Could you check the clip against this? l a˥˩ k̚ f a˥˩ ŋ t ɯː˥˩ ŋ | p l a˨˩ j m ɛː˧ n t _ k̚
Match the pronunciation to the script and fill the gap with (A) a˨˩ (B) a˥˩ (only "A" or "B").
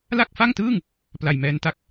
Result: B